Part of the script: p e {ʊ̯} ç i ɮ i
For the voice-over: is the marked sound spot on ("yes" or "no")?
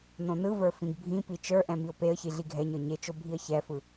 no